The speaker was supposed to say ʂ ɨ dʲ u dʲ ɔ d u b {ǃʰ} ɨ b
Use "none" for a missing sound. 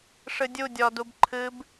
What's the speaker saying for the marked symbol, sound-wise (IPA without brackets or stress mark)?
ǃʰ